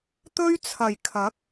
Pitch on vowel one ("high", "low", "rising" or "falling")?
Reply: high